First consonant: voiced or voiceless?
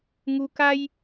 voiced